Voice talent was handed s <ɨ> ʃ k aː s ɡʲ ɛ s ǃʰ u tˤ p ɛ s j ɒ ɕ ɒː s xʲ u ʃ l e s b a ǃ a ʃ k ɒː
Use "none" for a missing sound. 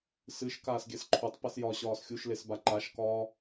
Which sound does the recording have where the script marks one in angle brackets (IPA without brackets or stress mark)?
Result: ɨ